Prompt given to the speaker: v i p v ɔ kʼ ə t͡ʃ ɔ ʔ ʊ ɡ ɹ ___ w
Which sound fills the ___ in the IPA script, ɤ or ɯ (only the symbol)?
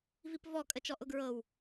ɤ